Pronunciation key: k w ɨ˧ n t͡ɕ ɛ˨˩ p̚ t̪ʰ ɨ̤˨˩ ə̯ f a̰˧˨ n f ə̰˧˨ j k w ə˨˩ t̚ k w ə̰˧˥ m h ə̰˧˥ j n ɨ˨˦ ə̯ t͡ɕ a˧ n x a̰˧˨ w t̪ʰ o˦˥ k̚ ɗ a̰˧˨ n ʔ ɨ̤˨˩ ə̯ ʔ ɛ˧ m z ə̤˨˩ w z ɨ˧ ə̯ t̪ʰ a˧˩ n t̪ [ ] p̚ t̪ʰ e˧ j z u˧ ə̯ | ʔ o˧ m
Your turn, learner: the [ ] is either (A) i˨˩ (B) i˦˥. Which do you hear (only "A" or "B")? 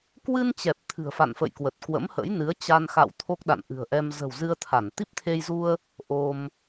B